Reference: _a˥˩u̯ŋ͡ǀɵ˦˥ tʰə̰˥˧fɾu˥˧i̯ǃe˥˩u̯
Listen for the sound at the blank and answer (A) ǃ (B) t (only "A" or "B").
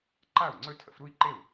A